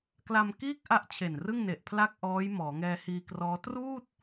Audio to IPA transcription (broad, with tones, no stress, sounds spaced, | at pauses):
k l a˧ m k iː˥˩ k̚ ʔ a˥˩ ʔ t͡ɕʰ e˨˩ n r ɯ˥˩ ŋ n e˨˩ ʔ pʰ l a˥˩ k̚ ʔ ɔː˦˥ j m ɔː˩˦ ŋ ɛː˧ h iː˧ k r ɔː˦˥ t r uː˥˩ t̚